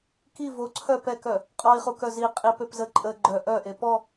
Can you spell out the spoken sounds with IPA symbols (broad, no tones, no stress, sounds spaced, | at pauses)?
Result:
k i v o ǀʰ œ p ɛ k œ | qʼ ɔ i̯ χ u k œ z i qʼ i p ø p z ə ǃʼ ə ɡ͡ǃ œ ʔ œ ʔ e p ɔ